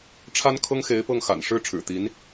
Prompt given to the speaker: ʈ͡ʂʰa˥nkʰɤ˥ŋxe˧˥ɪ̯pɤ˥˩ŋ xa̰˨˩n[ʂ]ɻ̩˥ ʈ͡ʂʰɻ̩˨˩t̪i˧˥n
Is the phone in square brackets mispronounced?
no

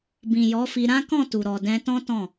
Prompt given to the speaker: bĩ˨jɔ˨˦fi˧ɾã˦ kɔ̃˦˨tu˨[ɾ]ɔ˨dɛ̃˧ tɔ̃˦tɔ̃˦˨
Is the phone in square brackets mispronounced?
no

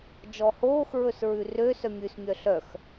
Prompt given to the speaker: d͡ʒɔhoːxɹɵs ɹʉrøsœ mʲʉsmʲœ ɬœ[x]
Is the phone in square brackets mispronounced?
no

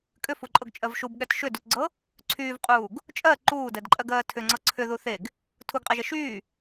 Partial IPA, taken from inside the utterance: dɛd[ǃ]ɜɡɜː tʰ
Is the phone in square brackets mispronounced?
yes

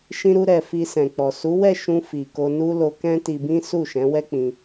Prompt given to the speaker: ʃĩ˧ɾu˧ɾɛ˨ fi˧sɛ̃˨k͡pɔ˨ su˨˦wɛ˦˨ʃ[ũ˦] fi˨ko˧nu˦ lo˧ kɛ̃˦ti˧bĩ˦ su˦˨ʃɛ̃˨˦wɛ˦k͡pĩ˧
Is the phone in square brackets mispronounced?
yes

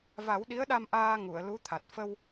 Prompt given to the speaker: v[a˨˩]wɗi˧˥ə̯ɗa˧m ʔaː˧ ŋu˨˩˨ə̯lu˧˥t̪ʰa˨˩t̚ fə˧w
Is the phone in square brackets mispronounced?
yes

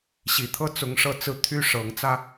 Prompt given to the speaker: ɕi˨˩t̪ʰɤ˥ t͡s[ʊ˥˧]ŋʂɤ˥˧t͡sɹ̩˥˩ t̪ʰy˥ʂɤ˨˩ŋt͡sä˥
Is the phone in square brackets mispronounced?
yes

